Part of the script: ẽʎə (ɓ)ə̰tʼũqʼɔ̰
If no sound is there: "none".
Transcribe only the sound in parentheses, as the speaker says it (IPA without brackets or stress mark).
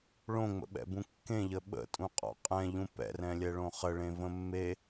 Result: ɓ